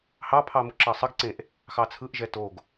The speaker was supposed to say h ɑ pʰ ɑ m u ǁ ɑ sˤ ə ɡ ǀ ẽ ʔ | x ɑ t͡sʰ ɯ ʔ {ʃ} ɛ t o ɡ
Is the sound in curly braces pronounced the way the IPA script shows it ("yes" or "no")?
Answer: no